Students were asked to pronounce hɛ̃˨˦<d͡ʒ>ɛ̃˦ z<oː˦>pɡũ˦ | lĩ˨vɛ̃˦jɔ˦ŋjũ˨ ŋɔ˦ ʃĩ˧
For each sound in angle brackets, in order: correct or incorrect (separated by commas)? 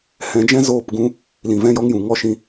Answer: correct, incorrect